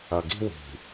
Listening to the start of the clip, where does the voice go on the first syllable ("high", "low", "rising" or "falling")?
low